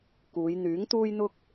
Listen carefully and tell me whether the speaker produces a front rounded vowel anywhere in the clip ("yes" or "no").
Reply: yes